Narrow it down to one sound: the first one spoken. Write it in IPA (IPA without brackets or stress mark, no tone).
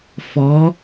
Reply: f